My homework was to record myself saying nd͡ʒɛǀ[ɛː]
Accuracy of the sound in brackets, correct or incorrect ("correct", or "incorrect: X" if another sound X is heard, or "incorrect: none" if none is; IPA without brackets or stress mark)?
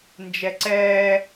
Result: correct